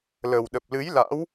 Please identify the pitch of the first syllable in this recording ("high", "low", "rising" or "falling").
low